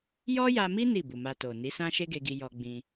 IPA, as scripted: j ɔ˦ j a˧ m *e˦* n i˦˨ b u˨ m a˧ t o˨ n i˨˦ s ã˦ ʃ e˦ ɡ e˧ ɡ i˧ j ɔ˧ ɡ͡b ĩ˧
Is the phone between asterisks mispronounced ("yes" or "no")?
yes